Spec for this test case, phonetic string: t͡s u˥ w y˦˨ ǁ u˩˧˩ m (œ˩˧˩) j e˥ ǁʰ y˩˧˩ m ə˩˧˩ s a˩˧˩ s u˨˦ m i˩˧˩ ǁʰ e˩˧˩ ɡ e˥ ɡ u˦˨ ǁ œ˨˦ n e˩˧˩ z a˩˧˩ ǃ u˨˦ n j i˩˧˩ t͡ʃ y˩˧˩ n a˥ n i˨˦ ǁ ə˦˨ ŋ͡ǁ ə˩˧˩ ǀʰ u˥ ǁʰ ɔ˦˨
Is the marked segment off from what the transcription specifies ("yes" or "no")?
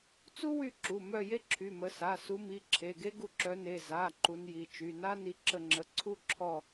yes